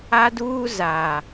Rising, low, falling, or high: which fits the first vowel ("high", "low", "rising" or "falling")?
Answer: high